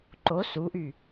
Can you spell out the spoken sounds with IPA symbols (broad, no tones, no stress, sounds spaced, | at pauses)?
ǃ o s u ʔ y